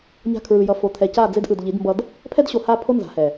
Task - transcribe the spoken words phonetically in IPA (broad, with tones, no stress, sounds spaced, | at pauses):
ɲ a̤˦ kʰ ɹ ɯ˨ j ʌ˨ f o˨ t̪ʰ ɛ˨ c a˦˨ d͡z e˦ d ʔ ɯ˨ d ʎ i˨˦ d m b ʌ˦ d | pʰ ɛ˦ d ɕ o˨ h a˦˨ pʰ o˦ n z a̤˨˦ h ɛ˨